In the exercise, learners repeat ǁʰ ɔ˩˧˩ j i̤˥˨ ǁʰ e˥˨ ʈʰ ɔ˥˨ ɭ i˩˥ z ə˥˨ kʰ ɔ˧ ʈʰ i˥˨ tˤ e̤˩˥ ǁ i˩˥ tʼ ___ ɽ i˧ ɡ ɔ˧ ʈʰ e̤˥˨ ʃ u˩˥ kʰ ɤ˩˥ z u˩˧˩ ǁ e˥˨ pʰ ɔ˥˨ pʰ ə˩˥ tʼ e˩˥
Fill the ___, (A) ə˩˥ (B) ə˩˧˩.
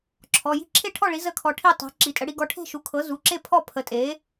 A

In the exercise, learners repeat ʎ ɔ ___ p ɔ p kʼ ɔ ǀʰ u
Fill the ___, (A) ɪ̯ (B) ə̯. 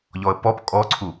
B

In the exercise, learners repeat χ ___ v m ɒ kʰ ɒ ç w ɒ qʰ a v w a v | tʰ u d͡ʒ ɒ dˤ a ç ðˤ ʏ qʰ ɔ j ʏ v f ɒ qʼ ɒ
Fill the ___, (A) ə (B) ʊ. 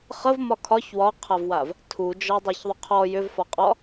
A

